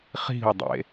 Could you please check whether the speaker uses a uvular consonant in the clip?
yes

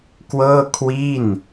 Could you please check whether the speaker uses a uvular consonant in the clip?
no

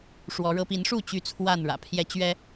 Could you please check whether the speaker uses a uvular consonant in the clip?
no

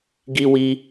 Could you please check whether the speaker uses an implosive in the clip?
no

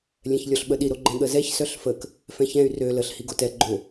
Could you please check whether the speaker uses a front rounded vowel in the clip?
yes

